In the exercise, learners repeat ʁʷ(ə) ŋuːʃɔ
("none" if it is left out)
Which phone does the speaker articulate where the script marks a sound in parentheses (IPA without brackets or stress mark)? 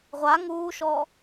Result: a